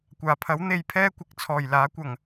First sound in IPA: kʷ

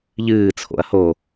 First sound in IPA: ʎ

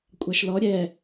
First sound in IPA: kʷʼ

